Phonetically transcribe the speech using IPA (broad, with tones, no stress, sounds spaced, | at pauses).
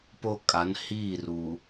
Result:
p o˦ kʼ a˨˦ n h iː˦˨ r u˨